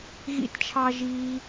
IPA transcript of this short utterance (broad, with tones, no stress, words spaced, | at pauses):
ɣḭ˦tt͡ʃʰɑ˦ ʒiː˧